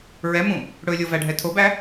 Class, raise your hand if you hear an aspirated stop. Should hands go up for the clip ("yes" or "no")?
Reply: yes